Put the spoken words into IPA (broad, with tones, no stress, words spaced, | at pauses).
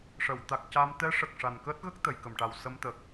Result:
ʂə˨˩˨w t̪a˨˩k̚ca˧m t̪ɛ˧˥ʂə˨˩k̚ ʂa˨˩nkəː˦˥t̚ɣə˦˥k̚ t̪ə˨˩˨jkə˨˩˨mʈa˨˩w sə˧mt̪ə˨˩k̚